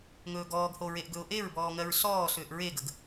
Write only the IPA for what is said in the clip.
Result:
ŋ ɵː ɡ ɔː ɡ h o ɹ e ʔ ɡ ɵ ʊ̯ ʔ e ɹ b ɔː ŋ ɜ ɹ s ɔː s ʏː ʔ ɹ e ɡ ə ɡ

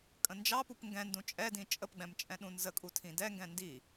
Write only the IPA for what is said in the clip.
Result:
kʼ ə̃ n d͡ʒ ɑ p u p ŋ ɡ ɛ̃ n d ũ t͡ʃʼ ɛ d ĩ t͡ʃʼ ə p ɡ͡b ɛ̃ m t͡ʃʼ ɛ̃ ɗ ũ n z ə kʼ u tʰ ĩ d ɛ ŋ ɡ ɛ̃ n d i

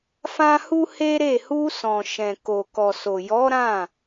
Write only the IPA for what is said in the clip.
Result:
f ã˦ h u˦ h e˦ ɾ e˦˨ h u˧ s ɔ̃˨ ʃ ɛ̃˨ k o˨ k ɔ˨ s o˨ j ɔ˨˦ ɾ ã˦˨

